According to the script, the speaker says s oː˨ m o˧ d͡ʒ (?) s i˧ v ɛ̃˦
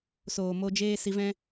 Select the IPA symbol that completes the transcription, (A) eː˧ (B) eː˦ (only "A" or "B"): B